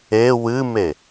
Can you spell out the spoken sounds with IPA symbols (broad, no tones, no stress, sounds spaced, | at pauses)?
e w ɨ m e